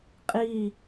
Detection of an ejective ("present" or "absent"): present